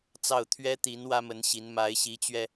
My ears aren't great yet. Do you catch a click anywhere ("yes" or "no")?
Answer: no